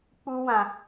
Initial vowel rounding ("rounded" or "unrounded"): rounded